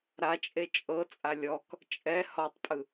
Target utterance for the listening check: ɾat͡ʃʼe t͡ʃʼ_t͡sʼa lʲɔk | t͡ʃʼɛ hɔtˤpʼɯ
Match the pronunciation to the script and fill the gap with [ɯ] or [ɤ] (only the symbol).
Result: ɤ